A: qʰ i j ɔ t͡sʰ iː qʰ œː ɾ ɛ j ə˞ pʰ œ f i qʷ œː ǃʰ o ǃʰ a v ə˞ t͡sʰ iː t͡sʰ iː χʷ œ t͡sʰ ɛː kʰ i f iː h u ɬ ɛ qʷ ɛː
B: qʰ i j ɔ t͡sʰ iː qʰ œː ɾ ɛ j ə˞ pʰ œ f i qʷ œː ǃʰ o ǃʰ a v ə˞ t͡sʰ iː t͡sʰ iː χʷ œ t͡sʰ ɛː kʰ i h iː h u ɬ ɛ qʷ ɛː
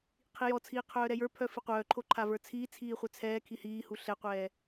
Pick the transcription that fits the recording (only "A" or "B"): B